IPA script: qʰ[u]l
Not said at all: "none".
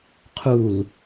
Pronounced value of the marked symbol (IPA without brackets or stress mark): u